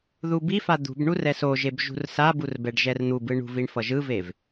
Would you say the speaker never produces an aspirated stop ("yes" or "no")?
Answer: yes